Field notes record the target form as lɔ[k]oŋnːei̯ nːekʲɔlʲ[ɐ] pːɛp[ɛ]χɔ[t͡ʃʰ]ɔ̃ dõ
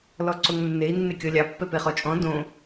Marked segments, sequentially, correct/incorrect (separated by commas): incorrect, incorrect, incorrect, incorrect